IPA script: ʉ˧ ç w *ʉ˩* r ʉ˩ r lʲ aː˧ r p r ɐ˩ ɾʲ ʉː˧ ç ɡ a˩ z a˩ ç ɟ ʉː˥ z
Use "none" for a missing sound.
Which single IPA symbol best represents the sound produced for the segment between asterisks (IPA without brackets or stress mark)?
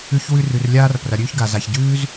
ʉ˧